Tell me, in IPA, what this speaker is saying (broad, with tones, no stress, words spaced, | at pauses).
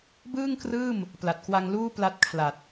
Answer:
bɯː˥˩ŋkrɯː˥˩m | pla˨˩t̚kwa˧ŋluː˥˩ pla˦˥t̚kʰla˨˩t̚